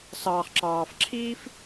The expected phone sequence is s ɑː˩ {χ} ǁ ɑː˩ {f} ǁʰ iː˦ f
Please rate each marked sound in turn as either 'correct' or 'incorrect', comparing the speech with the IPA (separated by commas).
correct, correct